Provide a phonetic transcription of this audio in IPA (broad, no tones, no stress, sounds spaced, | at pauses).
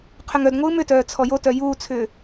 qʰ ʏ ŋ œ d ŋʷ ɯː m ʏ t œː t͡sʰ ɔ j o t œ j uː t͡sʰ ʏː